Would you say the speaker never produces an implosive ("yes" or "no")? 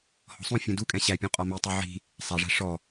yes